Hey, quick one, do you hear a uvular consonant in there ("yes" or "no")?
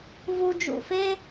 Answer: no